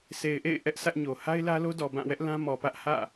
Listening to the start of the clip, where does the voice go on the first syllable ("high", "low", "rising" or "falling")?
low